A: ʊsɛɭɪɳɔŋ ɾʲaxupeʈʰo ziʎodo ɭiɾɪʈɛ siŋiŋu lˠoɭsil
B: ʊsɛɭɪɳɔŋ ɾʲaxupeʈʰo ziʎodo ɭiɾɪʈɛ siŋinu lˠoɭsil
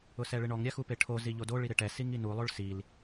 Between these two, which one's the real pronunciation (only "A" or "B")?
B